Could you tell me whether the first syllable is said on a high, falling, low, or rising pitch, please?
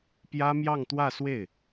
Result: high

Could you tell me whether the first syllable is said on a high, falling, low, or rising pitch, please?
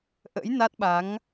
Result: rising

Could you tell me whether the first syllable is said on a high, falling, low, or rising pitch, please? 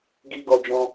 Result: high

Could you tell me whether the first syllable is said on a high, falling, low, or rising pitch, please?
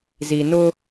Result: low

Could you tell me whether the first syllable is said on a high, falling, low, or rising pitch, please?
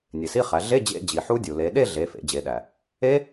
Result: low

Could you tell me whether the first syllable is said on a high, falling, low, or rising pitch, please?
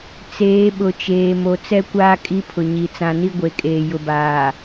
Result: rising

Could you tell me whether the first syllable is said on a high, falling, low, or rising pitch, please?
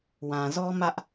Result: low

